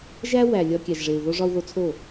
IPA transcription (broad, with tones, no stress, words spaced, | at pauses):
ʒæ˦ wæ˨ lʲɒ˧ kʲæ˨ʒʐe˨u̯ ðo˦ ʐɒ˧u̯ ðo˧t͡sʰo˦˨